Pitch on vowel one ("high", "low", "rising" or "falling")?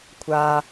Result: low